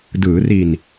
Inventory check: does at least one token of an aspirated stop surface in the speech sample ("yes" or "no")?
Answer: no